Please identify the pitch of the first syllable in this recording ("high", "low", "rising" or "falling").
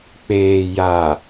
low